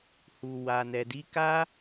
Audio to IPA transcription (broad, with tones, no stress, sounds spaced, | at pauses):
h u˨ w a˨ n ɛ˨ d i˨˦ k a˦